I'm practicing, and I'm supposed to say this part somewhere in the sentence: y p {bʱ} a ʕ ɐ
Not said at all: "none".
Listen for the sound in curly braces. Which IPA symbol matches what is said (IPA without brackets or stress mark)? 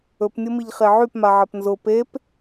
m